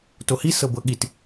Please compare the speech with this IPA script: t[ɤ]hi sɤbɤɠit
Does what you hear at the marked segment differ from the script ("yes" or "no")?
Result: yes